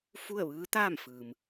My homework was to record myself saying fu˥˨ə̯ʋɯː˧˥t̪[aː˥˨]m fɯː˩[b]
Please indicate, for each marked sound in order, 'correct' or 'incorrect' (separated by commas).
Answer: correct, incorrect